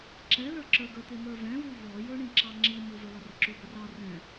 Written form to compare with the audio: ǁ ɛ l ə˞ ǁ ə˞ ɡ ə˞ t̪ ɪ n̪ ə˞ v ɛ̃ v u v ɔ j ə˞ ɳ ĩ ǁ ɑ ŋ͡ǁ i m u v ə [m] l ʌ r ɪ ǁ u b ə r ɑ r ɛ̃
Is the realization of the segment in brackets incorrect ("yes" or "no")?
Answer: yes